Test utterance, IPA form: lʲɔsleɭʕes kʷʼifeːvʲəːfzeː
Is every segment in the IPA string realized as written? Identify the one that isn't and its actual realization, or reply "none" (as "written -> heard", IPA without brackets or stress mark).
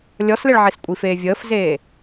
none